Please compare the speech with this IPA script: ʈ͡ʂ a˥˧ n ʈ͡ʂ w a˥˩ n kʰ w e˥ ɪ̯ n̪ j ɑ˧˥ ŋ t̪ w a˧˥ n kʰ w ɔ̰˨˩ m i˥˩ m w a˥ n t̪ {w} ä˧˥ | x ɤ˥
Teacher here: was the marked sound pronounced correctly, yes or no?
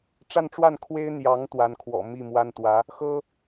yes